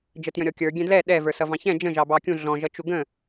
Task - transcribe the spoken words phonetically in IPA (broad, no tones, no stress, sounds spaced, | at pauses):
d͡ʒ ə t j ə̃ ɾʲ ɔ kʲ ə˞ ɡʲ ɛ̃ d l ɛ ɗ ɛ v ə˞ s ʌ v ɑ̃ ç ɛ̃ d͡ʒ ə̃ ʒ ɑ b ɑ kʲ ũ ɮ ɔ̃ ʒ ʌ t͡ʃ u ɡ ə̃